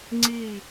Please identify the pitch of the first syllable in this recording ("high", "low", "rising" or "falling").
falling